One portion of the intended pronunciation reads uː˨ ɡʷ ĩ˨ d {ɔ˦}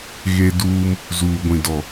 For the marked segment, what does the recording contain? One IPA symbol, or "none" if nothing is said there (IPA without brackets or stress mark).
ɔ˨